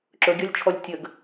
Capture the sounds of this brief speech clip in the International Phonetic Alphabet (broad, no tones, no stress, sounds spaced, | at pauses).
ǁ ɵ ɡʲ ɔ lʲ t͡ʃʰ ɔ lʲ tʲ ə ɡ